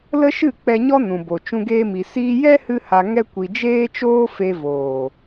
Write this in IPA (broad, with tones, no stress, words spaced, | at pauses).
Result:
lə˦ʃɨ˦˨ k͡pɛ˧ɲɔ˦nũ˨bo˨ t͡ʃũ˧ɡeː˧mi˨ siː˧jɛ˦ hɨ˦ha˧ ŋɛ˦kʷi˧ d͡ʒeː˦t͡ʃoː˦fe˧voː˨